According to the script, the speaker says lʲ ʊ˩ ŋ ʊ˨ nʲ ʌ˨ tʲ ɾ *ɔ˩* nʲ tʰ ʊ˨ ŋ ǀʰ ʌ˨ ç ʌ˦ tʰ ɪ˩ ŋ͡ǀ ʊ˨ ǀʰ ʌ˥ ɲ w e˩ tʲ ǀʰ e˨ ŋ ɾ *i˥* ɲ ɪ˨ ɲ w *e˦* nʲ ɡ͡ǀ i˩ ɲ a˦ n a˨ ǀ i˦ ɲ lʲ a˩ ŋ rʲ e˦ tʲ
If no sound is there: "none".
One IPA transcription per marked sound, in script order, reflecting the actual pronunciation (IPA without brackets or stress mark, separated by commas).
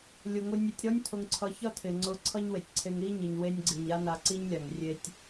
ɔ˦, i˦, e˦